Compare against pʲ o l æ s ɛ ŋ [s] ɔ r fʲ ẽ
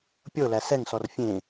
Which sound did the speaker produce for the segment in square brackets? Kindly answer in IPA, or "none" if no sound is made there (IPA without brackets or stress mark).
s